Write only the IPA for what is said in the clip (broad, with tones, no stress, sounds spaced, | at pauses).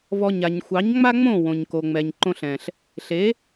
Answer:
v ɔ˧ ɲ a˨ ɲ xʷ ɑ˨˦ ɲ ŋ͡m a˦ ŋ͡m õ˦˨ w õ˨ ɲ k o˨ ŋ͡m ɛ˨ ɲ ǃ õ˧ ɬ ɛ̃˨ ɬ | ɬ e˨˦